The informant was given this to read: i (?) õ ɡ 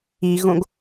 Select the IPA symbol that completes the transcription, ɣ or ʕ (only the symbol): ɣ